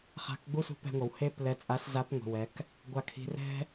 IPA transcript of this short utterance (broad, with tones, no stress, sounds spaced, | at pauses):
χ a̤˧ k ɡ͡b u˥ s ṳ˧˥ p ɛ̤˧ ŋʷ ʌ˩ w h e˥ p l ɛ˧ t͡sʼ a˧˥ s z a˧˥ p ŋʷ i̤˩ w ɛ˩˧ k | ɡʷ a˧ kʰ i̤˧ r ɛ̤˥